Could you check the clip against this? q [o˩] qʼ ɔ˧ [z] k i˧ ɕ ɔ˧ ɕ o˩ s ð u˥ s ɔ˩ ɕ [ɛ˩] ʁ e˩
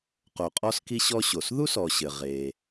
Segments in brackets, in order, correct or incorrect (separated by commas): correct, incorrect, incorrect